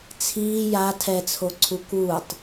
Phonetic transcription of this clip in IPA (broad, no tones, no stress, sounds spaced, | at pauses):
t͡sʰ iː j a tʰ ɛ t͡sʰ o ǀʰ u k uː tˤ